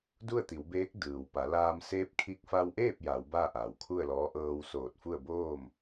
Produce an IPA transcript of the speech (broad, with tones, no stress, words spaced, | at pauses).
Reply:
du˥˨ə̯t̪i˩˧wbeː˧˥k̚ dɯː˩wpa˩˧laː˧m seː˧˥p̚kʰi˧k̚ fa˧wʔeː˥˨p̚ ja˩˧w baː˥˨ʔaː˩w kʰu˥˨ə̯lɔː˧˥ ʔɤː˧w soː˧˩t̚fu˥˨ə̯ boː˥˨m